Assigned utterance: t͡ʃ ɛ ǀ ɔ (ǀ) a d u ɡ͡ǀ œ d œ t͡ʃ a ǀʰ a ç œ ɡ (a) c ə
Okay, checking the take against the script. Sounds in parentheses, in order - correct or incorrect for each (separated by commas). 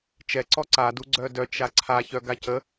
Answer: correct, correct